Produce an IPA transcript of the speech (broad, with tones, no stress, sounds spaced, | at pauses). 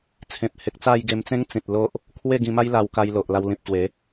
t͡sʰ ẽ˨ p̚ h e˨ k̚ t͡s a˥˧ j ɡ e˧ m t͡s ẽ˦ ŋ t͡s ĩ˨ t̚ l o˦ ʔ | kʰ w e˥˧ ɡ ĩ˧ m a˦ j l a˧ w k a˧ j l o˨ ʔ l a˧ w l ĩ˨ p̚ ɕ w e˨˦